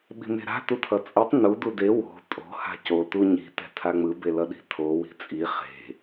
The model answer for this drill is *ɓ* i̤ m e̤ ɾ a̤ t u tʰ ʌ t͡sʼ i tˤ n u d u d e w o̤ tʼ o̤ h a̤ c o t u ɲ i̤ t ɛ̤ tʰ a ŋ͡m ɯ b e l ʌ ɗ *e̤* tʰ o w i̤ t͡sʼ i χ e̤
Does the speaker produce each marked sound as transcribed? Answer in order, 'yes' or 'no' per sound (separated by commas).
yes, no